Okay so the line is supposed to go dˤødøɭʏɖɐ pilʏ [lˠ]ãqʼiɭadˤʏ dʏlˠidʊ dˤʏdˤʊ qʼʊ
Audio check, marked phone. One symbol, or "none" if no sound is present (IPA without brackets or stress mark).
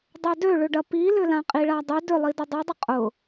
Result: l